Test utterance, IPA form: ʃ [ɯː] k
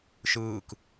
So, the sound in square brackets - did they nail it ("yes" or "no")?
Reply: yes